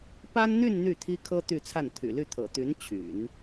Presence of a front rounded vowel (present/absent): present